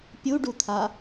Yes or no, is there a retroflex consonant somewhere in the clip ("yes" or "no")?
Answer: yes